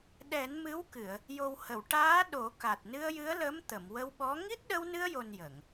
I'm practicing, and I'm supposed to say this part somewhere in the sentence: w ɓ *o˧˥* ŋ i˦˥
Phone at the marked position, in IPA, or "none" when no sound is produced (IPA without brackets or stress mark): ɔ˧˥